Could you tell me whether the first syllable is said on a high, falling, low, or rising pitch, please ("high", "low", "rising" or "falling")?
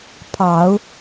low